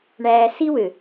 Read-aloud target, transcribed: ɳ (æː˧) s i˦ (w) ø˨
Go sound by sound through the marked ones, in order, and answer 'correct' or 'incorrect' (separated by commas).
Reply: correct, correct